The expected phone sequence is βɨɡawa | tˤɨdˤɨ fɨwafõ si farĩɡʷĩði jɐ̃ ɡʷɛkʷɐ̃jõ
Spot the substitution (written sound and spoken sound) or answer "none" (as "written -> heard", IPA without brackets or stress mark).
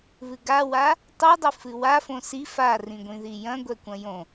none